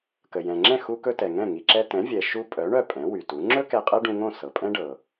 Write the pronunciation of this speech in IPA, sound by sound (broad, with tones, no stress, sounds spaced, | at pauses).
k ə˩ j ɛ̃˩ ŋ͡ǁ ɛ̃˥˩ x u˧ k ɵ˧ t ɛ˩ ŋ ɛ̃˥˩ ŋ i˩ ǁ ɛ˧ t ɛ̃˩˥ vʲ ɛ˩ ʃ u˥ pʼ œ˩˥ ɳ œ˥˩ pʼ ɛ̃˩˥ w y˩ t u˩˥ ŋ͡ǁ ɵ˥ k ɛ˧ qʼ ɛ˥ ɖ ũ˧ ŋ õ˥˩ s ɤ˩ pʼ ɛ̃˥ ɖ ɤ˩